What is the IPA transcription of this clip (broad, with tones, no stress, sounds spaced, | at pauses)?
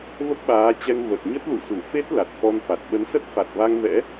v ə˦˥ p̚ ɓ aː˨˦ t͡ɕ ɛ˧ ŋ v ə˨˩ t̚ ɲ ə˦˥ t̚ l ṵ˧˨ s u˧˩ f e˦˥ t̚ l a˨˩ t̚ f ɔ˧ n f a˨˩ t̚ ɓ ə˨˦ n s ə˦˥ t̚ f a˨˩ t̚ v a˧ ŋ v ɛ̰˧˥